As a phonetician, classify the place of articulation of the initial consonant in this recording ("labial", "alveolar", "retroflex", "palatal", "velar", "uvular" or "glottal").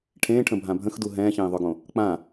retroflex